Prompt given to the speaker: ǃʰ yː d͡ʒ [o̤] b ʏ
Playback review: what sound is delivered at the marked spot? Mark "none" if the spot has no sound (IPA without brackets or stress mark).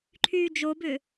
o